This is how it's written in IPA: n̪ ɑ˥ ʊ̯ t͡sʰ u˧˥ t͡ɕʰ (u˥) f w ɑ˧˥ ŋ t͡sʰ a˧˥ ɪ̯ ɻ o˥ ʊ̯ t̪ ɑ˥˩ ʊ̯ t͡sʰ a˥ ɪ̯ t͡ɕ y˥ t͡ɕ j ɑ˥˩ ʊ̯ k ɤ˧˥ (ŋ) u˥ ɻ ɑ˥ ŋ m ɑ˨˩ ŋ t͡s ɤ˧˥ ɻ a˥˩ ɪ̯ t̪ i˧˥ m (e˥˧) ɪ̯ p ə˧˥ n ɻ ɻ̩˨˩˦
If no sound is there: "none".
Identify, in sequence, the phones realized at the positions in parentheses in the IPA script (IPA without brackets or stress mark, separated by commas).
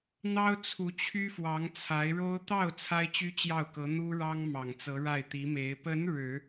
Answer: y˥, n̪, e˧˥